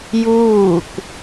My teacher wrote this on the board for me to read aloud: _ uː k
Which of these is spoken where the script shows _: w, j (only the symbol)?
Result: j